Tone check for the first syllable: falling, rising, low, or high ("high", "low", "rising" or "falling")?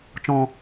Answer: low